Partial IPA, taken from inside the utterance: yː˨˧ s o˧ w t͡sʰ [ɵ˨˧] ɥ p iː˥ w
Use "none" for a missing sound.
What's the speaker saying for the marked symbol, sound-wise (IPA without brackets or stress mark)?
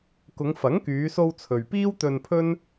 ɵ˨